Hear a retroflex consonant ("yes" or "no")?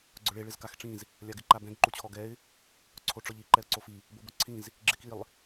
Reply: yes